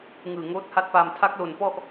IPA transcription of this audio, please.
ŋ ɯː˨˩ ŋ oː˦˥ t̚ h a˥˩ t̚ p aː˧ m tʰ a˦˥ k̚ l o˨˩ n p ɔ˥˩ ʔ

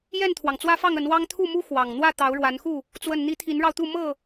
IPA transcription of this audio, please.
j ɛ˥˨ n t̪ʰ w ɑ˩ ŋ t͡s w ä˦ f ɑ˥˨ ŋ ə˨˦ n w ɑ˦ ŋ t̪ʰ u˥˨ m u˦ x w ɑ˨˩ ŋ n̪ w ä˥˨ t̪ ɑ˨˦ ʊ̯ ɻ w a˨˦ n x u˥˨ | t͡s w ə˨˩ n n̪ i˨˦ t̪ʰ i˨˦ n ɻ ɑ˧ ʊ̯ t̪ u˥˨ m ɤ˥˨

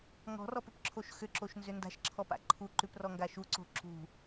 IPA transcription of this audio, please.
ŋ ɔ̤ r ɔ p ʏ p ǁʰ o ʃ x ʏ ǁ o ʃ n z ʏ n d a̤ ʃ ǁʰ ɔ p a̰ ǃʰ u ǃ ʉ p r ɔ ŋ ɡ a ʃ u ǀ o̤ ǁ ṳ

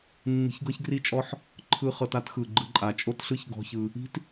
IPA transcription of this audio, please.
nː i̤˧ ç ɡ ɤ˦ ç ɡ r i˦ t͡ʃʼ ɔ˦ ħ | ǃʰ ɯ˧ χ ɤ˧ t a˦ t x ɯ˨ ɡ͡ǃ ɯ˧ ǃʼ a˨ t͡ʃʼ o˦ t ɬ ɯ˦ ç ɡ ɔ̤˦ ç ɯ˧ | i̤˦ t

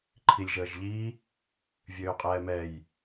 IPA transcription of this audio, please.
ǃʰ i lʲ ʒ əː ʒ ʎ i | vʲ øː qʼ ɛː m ɛ j

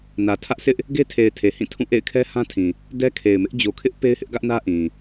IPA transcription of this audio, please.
n ä˨ tʰ ä˦ ʔ s ɪ˦ ʔ | ɡ e˦ tʰ e˨ ɪ̯ tʰ e˨ h ĩ˦˨ tʰ ũ˦˨ ʔ ḛ˦˨ ɪ̯ kʰ ɛ˦ h ã˦ tʰ ĩ˨ | d ɛ˦ kʰ e˨ ɪ̯ m ɪ˦ ʔ d͡ʑ o˨ kʰ ɪ˦ ʔ p e˦ ɪ̯ h ɪ˦ ʔ ɡ ä˦ ʔ n ä˦ ʔ ĩ˨

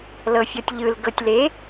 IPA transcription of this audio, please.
l ɤ fʲ ɔ tʲ ʎ ɯ l ɡ ɤ tʲ l e

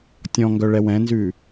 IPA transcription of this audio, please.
tʲ ɔ̃ ŋ ɡ œ ɭ ɛ w ɛ̃ n z ʉ

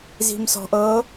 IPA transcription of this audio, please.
z i̤ m s ɔ̤ ʔ ɤ

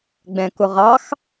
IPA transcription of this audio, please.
ɡ͡b ɛ̃ k ʊ ʁ ɑ x

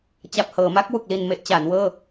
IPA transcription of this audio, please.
t͡ɕ a˨˩ p̚ h ɤː˩˦ m a˦˥ k̚ w u˨˩ k̚ l i˨˩ n m e˦˥ ʔ t͡ɕ a˩˦ n w ɤː˥˩

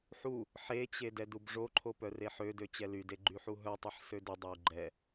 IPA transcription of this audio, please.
ħ u | ħ e t͡ɕ e d ɛ d u b ʐ o ǃʰ o p œ r e ħ ø d ø t͡ɕ ɛ l y d e ɡ͡ǃ y ħ u ɦ œ tˤ e ħ s ø d ə dˤ o u̯ ɡ͡ǃ ɛ

